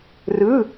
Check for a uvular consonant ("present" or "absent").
absent